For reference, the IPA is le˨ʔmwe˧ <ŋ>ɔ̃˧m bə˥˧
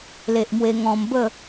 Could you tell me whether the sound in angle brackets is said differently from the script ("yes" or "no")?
no